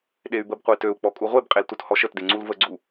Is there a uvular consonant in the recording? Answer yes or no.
yes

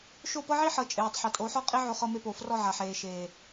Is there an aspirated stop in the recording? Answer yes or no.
no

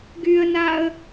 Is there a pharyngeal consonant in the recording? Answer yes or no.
no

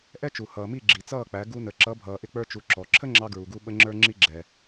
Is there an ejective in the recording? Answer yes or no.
no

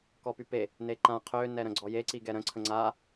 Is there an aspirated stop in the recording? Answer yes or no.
yes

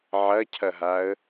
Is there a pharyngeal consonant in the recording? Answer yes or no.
yes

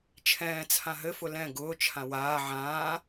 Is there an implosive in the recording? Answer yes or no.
no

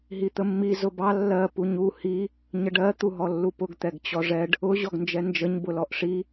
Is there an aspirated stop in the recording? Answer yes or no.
no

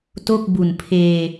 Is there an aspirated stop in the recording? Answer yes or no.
yes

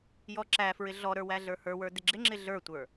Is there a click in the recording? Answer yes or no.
yes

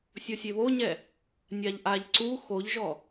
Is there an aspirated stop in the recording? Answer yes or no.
no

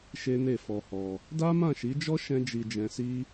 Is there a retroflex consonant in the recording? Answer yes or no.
no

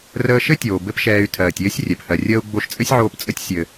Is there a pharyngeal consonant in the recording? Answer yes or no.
yes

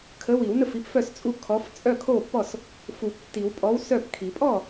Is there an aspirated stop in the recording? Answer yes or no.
yes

